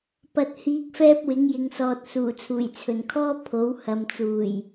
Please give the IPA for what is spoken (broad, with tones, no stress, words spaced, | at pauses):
pɐ˨t̚hiː˨˥k̚ fɛː˥p̚wɪ˨˥ŋjɪ˨ŋsɔː˨t̚ suː˨˩t͡sʰuː˨˩jt͡sʰɵ˨˩nkʰɔː˥ pʰo˨˥w hɐ˨mt͡suː˨˩j